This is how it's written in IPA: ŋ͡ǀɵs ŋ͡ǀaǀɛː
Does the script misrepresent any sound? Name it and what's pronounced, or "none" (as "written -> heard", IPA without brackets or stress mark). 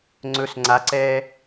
none